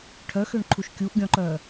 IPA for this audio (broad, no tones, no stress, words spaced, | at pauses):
ʈʰœxøɳǃʰuʃ kʲuʔɡʲɔ̃ǃœ